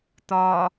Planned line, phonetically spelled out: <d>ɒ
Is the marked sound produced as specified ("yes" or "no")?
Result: no